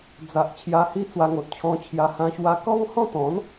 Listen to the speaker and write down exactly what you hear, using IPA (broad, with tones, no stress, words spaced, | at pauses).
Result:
d͡za˨ʔ t͡ɕʰja˧hi˦ t͡swa˧ŋo˨t̚ t͡ɕʰɔ̃˧t͡ɕʰja˧hã˧ ɕwa˧kɔ˦ŋhɔ̃˥˧t̪ɔ̃˨˦n